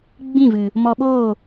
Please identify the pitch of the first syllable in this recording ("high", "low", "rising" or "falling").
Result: falling